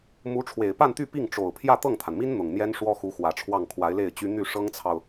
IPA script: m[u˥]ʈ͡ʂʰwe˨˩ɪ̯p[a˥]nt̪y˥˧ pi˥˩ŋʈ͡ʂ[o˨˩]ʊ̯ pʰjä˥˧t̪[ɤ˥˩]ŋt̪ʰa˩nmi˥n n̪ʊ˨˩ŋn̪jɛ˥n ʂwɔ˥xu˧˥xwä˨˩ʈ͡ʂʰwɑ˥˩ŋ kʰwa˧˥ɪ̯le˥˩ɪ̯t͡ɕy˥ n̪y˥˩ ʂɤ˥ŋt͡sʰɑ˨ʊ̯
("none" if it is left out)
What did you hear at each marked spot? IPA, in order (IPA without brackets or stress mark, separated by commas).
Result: u˧˥, a˥˧, o˨˩, ɤ˥˩